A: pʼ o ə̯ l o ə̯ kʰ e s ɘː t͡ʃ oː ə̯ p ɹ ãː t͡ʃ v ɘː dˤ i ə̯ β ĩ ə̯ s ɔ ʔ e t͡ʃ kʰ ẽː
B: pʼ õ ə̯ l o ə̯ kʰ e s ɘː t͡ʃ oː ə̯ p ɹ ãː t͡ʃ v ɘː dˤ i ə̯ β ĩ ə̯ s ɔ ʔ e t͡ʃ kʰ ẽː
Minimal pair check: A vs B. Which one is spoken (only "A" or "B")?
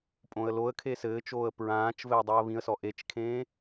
B